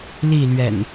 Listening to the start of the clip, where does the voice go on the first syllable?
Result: falling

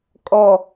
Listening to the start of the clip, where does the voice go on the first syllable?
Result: low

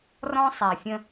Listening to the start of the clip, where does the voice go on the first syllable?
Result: high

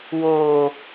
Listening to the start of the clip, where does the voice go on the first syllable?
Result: low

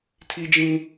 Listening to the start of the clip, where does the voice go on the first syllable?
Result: high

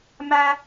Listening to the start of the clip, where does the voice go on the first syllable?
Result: high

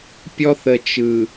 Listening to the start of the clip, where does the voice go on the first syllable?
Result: high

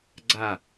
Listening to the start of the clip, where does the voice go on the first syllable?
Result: falling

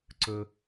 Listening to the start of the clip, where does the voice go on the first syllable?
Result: high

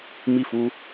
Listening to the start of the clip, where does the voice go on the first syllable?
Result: falling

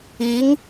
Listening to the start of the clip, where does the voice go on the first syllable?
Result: rising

